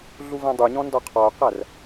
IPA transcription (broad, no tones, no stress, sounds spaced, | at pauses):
ɮ u v æ̃ dˤ u ɲ ɔ̃ n d ɒ qʰ ɒ o̯ q æ r